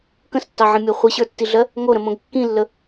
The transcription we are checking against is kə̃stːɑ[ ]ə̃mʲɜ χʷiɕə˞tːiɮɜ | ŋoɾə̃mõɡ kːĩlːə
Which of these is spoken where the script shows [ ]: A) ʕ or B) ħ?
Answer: A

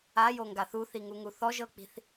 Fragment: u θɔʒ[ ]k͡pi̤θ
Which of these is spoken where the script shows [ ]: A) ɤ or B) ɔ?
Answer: A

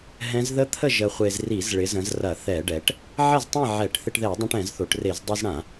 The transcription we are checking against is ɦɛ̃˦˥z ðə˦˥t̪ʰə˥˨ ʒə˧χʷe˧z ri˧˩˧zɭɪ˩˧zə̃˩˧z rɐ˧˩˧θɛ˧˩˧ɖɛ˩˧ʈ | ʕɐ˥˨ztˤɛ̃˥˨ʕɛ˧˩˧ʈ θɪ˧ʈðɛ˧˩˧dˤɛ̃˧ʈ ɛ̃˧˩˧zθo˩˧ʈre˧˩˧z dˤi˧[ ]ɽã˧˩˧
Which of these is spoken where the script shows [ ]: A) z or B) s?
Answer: A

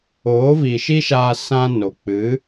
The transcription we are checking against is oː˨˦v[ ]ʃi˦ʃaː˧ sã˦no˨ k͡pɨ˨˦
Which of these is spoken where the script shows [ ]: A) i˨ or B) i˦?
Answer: A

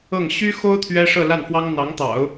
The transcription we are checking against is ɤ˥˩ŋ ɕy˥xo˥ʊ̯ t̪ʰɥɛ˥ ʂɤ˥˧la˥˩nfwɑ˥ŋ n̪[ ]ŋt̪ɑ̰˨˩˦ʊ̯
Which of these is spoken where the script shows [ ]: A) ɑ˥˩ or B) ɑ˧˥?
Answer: B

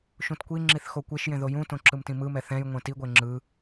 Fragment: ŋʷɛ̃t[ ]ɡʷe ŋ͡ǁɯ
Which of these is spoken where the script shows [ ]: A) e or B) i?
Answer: B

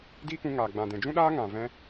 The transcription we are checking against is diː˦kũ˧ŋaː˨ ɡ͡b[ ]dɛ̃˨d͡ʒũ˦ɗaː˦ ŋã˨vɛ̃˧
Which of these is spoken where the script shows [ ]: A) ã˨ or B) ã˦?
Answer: A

